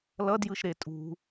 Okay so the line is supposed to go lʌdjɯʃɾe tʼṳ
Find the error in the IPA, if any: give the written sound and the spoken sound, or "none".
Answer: none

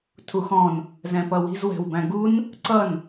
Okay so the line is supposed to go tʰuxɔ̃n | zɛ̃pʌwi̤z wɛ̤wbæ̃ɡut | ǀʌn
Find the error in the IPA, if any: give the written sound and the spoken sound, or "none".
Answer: t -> n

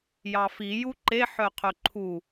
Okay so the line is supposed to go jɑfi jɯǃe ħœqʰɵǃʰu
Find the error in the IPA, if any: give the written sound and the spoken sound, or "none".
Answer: ɯ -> u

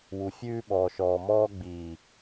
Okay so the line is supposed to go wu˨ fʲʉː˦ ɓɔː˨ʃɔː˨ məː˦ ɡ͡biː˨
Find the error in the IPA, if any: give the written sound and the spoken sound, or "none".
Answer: əː˦ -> ɔː˦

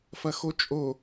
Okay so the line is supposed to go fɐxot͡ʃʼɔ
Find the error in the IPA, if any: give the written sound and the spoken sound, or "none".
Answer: ɔ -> o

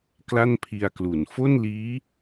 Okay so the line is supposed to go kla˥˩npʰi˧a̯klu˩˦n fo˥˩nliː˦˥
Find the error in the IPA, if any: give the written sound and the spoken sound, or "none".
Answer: none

